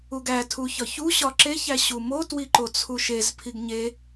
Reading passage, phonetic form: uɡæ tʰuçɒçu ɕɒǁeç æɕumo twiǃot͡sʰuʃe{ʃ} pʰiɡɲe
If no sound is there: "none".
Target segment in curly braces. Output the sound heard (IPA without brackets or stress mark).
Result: z